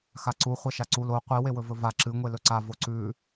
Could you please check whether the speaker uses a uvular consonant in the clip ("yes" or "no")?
yes